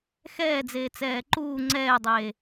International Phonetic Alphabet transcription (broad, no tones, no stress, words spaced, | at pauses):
xɛːd͡zeː t͡sɛːǃuː ŋ͡ǀɛːdˤeː